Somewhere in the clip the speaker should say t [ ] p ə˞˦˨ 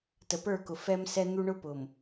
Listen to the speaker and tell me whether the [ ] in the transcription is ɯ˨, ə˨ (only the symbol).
ə˨